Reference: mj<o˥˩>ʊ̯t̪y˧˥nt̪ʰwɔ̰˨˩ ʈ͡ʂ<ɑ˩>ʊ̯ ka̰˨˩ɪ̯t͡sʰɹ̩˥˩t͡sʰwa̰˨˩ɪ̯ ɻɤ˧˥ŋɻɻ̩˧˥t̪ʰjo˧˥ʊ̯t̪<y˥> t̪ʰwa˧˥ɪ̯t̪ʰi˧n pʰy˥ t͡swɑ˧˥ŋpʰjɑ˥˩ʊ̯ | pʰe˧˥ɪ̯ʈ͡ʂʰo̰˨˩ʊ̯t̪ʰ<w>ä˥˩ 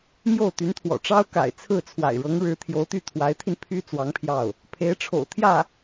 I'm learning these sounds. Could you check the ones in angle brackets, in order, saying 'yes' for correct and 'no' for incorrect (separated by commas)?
yes, no, no, no